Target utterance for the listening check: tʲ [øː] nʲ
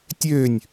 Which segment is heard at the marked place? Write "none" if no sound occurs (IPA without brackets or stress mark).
øː